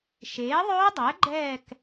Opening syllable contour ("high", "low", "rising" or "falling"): rising